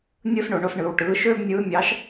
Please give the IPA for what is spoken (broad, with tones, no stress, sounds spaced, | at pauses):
nʲ ɯː˥ s ɳ o˧ ɳ o˧˥ s ɳ ɯː˧ w ʈ ɯː˧˥ ʃ øː˥ b nʲ ɯː˧˥ mʲ ɑ˧˥ ʃ